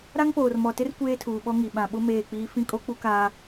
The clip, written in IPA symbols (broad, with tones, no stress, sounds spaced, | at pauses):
ɾ a˦ ŋ p oː˨ r m ɔ˨ t ɪ˦ r kʷ eː˦ tʰ uː˨ ɓ ɔ˦ ŋ i˨ ɓ ã˨ ɓ ʊ˦ m eː˦˨ k͡p iː˦ f ĩ˦ kʼ o˦ k͡p u˦ k aː˦